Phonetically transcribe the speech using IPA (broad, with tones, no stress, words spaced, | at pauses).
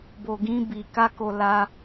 bo˧ɡĩ˦ bi˧ ka˦ko˧ la˦